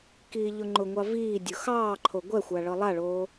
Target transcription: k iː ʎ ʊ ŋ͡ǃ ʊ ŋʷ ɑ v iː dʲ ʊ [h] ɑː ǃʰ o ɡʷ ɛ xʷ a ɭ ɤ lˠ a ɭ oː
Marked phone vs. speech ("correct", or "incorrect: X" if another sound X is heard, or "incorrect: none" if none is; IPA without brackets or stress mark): incorrect: x